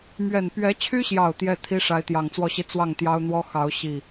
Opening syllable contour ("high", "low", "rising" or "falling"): low